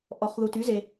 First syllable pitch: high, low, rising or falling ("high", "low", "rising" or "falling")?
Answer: low